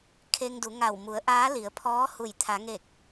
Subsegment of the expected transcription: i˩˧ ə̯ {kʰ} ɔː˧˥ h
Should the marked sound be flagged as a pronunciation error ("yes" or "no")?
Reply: yes